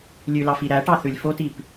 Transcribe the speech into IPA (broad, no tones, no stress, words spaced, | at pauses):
lʲʉlɑfi ɾæʈɑθʉlʲ fotip